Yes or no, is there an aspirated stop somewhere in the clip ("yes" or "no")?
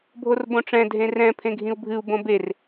yes